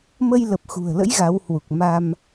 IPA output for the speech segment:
m ə˧ j l ə˨˩ p̚ x ṳ˨˩ ə̯ l ə̰˧˥ j ɣ a˨˦ w h w u˨˩ k̚ m a˧ m

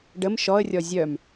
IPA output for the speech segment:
ɖ ə m ʃ ɔ ə̯ rʲ ɔ zʲ œ m

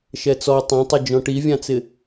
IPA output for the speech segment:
ʃ ɛ t͡s ɔ tˤ ɛ̃ tˤ ɪ d͡ʒ ɔ̃ ʈ i vʲ ã t͡s ɪ

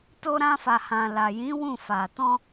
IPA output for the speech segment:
t o˧ ɾ ã˧ f a˨ h ã˨ l a˨ j ĩ˨˦ w ũ˦˨ f a˨ t ɔ̃˧

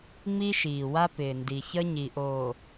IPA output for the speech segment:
ŋ͡m i˦ ʃ iː˨ w a˦ p ɪː˨ n d i˨ ç ə˦ ɲ i˨ ʔ oː˨

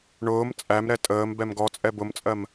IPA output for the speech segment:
ɳ ʊː m t͡sʼ æ m ɾ ɛ tʼ əː m b ɛ m ɡ ɔ t͡sʼ ɛ b ʊ m t͡sʼ ɜ m

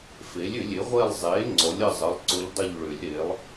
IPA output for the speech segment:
f e˩˥ lʲ ʏ˨˩˦ lʲ e˩˥ ʁʷ e˦˨ lˠ zˤ e˩˥ ŋ͡ǀ ɔ˩˥ lʲ ə˦˨ zˤ ə˩˧˩ lˠ ǀ ʊ˧˥ ʎ dˤ ʊ˦˨ ʎ ɭ ʏ˨˩˦ lʲ ɾ e˩˥ lˠ

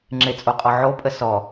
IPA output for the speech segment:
ŋ͡ǁ ɪ t͡sʼ o qʼ ɔ ʕ o pʼ ə s ɔ

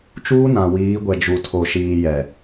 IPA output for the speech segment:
t͡ʃ uː˦ n ã˨ w iː˨˦ ɡʷ ɛ˨ d͡ʒ u˨ tʰ o˨ ʃ iː˨ j ɛ˨

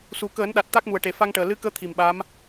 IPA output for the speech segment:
s u˨˩ k əː˨˩˦ n ɗ a˨˩ t̚ t̪ a˦˥ k̚ m u˨˩ ə̯ ʈ e˨˩ f a˧ ŋ ʈ əː˨˩ l ɨ˧˥ k əː˧˥ t̪ʰ i˨˩ m ɓ a˧˥ m

